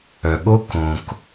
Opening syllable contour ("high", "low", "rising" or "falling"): low